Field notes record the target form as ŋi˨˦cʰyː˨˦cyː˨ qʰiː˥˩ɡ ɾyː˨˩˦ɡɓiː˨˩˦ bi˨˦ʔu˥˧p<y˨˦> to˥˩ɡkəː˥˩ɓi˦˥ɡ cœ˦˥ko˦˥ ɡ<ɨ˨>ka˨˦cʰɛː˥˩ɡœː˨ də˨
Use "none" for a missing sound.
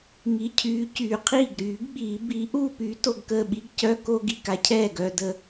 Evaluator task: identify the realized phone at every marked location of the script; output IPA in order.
y˨˦, i˨

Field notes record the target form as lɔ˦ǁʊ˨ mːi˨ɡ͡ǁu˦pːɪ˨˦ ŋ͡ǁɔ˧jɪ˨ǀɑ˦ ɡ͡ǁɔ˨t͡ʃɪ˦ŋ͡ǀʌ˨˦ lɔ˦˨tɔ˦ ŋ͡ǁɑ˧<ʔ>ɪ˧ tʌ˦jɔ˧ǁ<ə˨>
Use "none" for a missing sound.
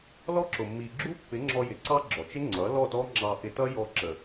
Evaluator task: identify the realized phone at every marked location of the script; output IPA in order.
ʔ, ə˨

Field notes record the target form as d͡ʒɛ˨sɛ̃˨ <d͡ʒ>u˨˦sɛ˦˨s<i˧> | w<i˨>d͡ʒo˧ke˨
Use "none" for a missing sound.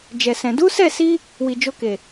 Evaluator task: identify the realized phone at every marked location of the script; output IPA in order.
d, i˧, i˨

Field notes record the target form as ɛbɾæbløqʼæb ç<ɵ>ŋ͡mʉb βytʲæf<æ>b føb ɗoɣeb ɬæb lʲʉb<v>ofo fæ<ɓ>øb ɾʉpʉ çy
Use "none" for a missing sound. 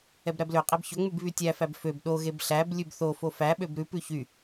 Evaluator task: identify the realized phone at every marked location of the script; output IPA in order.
ɵ, æ, θ, ɓ

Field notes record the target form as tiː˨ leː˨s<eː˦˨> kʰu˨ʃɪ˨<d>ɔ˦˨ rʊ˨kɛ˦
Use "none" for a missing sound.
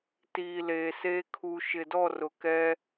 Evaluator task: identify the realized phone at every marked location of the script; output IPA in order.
eː˦, d

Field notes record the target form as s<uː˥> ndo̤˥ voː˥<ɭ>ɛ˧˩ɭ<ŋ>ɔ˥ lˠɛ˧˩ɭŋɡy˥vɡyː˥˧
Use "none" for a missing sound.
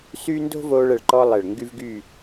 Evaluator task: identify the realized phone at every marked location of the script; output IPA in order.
yː˥, ɭ, ǃ

